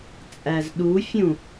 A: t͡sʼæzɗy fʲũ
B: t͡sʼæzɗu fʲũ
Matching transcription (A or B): B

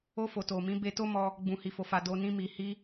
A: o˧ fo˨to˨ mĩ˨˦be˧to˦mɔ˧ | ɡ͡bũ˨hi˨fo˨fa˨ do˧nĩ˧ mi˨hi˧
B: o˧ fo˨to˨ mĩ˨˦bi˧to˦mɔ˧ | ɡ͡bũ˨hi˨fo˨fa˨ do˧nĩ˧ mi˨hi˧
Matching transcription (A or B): A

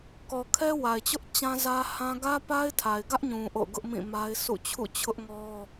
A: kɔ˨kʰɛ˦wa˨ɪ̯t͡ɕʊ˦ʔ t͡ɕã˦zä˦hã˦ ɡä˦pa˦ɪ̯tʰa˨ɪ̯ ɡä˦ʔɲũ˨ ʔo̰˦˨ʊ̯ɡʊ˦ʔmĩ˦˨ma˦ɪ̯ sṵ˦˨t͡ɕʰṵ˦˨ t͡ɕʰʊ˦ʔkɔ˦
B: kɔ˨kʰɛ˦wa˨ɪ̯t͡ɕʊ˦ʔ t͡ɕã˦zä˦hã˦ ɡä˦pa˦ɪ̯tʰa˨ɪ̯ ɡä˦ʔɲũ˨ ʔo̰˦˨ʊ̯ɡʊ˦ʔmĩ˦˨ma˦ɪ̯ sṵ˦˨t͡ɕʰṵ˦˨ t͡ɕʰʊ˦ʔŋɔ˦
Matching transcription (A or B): B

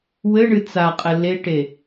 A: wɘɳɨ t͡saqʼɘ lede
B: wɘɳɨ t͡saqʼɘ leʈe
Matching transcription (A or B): B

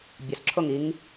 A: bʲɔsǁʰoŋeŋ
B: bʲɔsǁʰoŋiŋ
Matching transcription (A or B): B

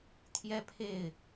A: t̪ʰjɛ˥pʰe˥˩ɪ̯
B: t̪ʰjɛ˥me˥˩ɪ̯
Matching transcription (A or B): A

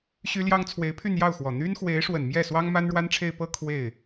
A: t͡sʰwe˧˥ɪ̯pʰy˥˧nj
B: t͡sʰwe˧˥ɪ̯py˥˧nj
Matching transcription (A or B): A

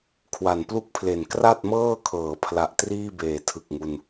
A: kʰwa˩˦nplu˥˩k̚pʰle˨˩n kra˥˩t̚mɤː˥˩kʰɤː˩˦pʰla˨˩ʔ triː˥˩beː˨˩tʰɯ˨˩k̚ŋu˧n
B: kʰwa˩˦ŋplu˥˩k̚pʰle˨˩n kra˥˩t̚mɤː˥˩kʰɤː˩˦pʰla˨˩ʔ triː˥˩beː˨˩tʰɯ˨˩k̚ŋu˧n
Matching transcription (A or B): A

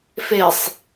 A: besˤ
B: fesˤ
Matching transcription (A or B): B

